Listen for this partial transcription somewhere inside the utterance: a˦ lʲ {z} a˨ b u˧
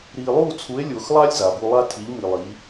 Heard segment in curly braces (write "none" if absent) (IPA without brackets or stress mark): z